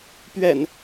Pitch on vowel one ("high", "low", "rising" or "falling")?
low